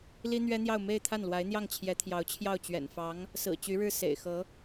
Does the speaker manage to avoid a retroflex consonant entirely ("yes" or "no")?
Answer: no